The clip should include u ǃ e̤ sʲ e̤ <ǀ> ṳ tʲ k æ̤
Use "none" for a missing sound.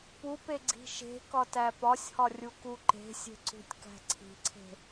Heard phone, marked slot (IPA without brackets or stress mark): ǀ